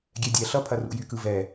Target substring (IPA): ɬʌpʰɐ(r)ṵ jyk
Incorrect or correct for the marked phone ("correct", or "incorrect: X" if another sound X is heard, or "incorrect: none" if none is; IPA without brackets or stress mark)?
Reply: correct